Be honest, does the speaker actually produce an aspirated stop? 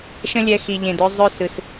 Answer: no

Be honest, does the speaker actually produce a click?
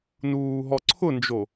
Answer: yes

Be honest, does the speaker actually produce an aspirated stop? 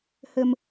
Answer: no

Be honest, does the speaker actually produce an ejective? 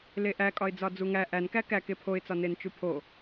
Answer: yes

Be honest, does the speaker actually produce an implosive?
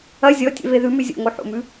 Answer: no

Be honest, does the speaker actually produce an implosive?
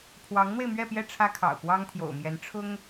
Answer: no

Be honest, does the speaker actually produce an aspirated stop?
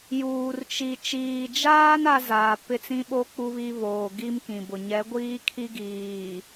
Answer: yes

